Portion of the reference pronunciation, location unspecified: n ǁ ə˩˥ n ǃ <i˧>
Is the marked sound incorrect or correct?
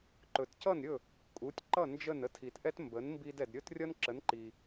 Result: incorrect